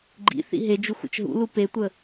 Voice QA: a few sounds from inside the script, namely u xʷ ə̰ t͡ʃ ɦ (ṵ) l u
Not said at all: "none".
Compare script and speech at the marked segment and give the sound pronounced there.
ṵ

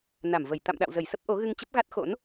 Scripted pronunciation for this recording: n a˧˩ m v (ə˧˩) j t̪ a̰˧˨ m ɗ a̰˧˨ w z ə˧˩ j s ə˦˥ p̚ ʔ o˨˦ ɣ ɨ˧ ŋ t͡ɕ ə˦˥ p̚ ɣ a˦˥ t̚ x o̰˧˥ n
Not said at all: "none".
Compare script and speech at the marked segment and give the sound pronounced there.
ə˧˩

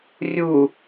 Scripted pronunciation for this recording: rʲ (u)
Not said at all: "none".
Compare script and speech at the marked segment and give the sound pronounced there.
u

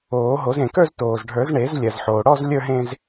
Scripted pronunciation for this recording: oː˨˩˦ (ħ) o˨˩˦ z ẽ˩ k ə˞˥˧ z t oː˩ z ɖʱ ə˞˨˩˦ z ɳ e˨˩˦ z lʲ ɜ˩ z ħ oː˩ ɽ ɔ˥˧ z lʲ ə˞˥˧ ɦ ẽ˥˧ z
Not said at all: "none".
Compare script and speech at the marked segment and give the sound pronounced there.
ɦ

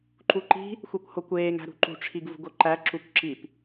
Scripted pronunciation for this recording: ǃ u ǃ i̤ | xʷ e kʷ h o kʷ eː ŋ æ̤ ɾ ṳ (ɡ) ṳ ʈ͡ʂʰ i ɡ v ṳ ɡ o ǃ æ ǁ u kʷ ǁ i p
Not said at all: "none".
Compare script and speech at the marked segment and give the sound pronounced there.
ǃ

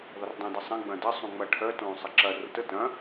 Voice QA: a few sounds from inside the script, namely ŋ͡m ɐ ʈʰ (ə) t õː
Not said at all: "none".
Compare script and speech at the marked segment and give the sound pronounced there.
œ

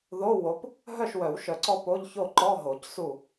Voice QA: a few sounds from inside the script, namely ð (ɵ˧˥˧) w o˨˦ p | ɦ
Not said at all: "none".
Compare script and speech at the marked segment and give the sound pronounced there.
o˧˥˧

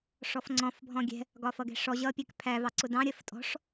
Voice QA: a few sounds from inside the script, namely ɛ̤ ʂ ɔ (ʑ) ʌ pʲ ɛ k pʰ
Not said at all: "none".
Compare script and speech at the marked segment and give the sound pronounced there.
ʑ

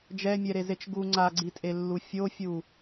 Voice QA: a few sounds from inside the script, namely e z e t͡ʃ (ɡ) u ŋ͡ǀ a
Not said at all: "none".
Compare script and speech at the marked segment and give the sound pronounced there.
ɡ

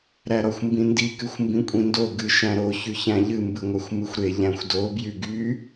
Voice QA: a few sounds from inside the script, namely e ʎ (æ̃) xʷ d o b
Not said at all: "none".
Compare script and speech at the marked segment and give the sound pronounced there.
æ̃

